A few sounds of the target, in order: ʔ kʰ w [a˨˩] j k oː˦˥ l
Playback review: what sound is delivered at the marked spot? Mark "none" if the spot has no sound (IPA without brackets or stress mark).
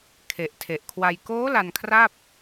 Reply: a˧